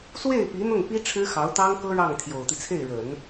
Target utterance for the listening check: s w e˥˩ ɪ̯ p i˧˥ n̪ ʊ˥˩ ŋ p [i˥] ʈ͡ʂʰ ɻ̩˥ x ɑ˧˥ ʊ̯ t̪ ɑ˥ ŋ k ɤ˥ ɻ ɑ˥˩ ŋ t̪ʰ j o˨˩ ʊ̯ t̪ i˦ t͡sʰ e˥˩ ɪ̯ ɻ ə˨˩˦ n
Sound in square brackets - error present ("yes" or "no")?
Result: no